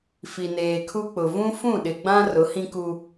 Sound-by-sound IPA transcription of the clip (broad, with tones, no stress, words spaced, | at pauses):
fi˨neː˨kʰu˦k͡pʊ˨ vũ˦ fũ˦˨ɗɪ˨ɡ͡bã˦ rʊ˨˦hĩ˦ku˦